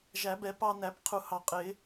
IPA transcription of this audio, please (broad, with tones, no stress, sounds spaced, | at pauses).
ʒ æ˨˩˦ b ɛ˨˩˦ p ɑ˧ n æ˨˩˦ p qʰ u˨˩˦ h ɑ˨˩˦ qʼ ɪ˨˩˦